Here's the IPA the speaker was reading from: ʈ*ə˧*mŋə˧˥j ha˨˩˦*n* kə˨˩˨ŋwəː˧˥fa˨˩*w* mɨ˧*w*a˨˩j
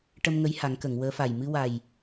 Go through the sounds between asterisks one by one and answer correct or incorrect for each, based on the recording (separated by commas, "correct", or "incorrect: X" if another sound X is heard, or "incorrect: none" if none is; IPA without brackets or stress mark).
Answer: correct, incorrect: ŋ, incorrect: j, correct